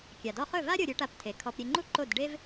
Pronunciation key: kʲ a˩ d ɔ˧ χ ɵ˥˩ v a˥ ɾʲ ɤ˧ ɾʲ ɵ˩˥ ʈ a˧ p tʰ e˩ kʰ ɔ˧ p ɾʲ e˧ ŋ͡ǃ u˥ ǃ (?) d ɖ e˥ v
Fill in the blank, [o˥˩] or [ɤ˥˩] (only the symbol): o˥˩